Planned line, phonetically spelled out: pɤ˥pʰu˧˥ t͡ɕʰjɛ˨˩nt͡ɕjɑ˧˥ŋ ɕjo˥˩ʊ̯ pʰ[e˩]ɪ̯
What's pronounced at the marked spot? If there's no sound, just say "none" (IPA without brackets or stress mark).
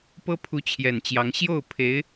e˧˥